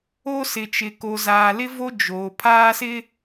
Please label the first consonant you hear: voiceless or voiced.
voiceless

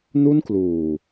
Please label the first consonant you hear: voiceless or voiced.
voiced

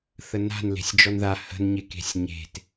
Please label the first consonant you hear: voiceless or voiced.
voiceless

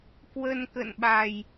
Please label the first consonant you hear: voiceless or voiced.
voiceless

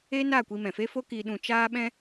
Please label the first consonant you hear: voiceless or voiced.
voiced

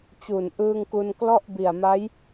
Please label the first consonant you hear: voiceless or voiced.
voiceless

